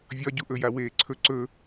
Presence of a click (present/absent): present